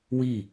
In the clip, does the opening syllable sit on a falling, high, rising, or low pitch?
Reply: falling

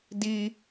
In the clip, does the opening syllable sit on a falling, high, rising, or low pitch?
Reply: high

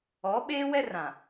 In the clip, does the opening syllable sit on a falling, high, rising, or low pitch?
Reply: rising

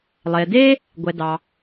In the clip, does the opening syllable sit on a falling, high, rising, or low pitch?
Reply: low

